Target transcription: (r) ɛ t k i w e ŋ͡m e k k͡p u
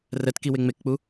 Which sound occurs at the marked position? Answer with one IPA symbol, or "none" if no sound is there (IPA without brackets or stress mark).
r